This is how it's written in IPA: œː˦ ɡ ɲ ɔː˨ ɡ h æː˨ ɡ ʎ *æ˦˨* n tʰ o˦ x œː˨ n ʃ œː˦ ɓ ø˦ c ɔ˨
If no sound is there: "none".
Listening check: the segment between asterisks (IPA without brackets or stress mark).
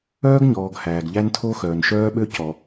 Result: æ˦